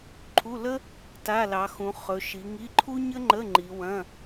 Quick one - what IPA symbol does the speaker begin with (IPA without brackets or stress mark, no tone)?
ǃʰ